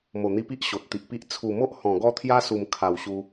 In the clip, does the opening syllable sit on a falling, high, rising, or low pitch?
low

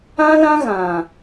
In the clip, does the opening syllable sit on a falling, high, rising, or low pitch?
high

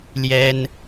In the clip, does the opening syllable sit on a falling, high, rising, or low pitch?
high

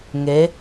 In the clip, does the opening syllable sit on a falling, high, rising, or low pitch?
rising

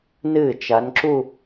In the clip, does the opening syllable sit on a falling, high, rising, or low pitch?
falling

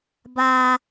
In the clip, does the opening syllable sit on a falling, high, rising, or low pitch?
high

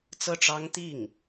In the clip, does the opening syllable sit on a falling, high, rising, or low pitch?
falling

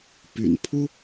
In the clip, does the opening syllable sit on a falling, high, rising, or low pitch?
low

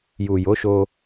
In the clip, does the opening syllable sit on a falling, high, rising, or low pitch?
low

